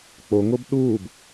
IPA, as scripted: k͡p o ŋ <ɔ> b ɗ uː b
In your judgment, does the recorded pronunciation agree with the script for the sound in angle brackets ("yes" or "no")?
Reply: no